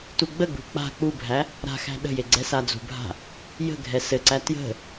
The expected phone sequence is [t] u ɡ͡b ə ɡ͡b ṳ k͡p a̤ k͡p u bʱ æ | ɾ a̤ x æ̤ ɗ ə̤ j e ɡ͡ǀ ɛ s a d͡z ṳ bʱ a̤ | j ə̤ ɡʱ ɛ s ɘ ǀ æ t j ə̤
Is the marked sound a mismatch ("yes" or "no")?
no